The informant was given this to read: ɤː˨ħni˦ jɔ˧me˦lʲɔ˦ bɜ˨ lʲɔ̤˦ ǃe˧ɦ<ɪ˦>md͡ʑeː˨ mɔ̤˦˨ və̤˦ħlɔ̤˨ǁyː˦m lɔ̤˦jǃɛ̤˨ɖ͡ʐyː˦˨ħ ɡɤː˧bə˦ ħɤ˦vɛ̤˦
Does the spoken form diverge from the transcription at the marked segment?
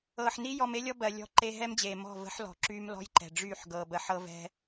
yes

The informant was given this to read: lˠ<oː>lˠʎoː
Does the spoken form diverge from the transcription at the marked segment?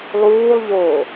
yes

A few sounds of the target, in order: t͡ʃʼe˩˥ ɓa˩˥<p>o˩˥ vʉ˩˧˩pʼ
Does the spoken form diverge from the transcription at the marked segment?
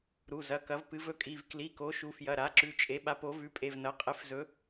no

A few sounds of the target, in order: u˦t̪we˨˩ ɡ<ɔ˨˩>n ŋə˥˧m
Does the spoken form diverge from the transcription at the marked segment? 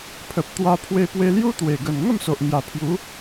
yes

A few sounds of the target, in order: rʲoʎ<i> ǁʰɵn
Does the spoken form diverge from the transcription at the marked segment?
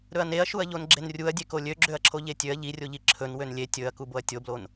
no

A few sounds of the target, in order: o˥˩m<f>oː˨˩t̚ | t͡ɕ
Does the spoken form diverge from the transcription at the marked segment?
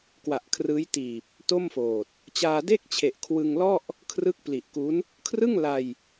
no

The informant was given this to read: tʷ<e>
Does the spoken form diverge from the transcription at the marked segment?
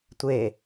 no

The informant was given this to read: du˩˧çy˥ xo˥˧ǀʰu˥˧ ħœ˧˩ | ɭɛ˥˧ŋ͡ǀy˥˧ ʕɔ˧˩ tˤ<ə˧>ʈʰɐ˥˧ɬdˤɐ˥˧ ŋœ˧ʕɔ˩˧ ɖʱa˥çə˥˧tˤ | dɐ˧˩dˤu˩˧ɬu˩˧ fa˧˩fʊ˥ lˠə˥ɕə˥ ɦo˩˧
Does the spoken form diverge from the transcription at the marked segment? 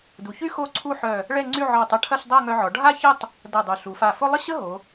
yes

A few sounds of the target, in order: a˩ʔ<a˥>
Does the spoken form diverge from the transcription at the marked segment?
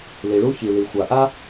no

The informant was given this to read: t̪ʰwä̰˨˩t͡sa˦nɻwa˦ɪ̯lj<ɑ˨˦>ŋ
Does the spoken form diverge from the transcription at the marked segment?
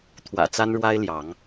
no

